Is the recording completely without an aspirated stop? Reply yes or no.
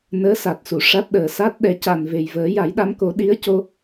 yes